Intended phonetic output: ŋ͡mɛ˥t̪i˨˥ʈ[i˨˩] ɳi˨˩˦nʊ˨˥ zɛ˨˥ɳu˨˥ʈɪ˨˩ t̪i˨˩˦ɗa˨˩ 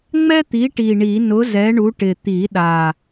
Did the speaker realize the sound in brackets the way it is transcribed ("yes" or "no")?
yes